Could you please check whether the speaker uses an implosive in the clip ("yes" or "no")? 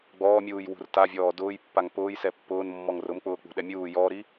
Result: yes